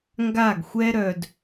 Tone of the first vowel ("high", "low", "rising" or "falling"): falling